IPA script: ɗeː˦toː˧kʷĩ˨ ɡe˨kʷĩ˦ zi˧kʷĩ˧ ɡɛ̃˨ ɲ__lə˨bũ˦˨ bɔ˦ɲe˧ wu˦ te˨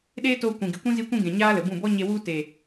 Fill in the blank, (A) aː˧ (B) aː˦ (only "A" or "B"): B